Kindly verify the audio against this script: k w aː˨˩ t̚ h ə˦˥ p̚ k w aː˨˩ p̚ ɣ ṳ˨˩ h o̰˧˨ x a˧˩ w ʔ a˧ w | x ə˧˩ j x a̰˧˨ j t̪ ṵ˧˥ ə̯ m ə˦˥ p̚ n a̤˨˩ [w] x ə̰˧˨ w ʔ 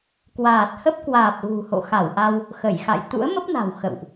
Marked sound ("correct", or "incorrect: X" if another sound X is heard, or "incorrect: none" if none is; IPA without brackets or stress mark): correct